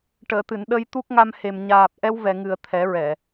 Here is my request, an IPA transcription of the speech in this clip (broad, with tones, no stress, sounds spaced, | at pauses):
ʈ əː˨˩˨ t̪ ɨ˨˩˨ n ɗ ə˧ j t̪ u˦˥ k̚ ŋ a˧ m h e˨˩ m ɲ aː˨˩ p̚ ʔ ɛ˧ w v ɛ˨˩ ŋ ɨ˨˩ ə̯ t̪ʰ ɛ˨˩˦ ɹ ɛ˨˩˨